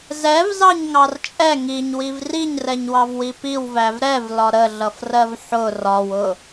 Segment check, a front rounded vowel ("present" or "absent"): absent